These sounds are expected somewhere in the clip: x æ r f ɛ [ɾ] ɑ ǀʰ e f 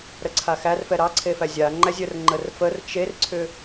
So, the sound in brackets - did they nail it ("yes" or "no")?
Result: yes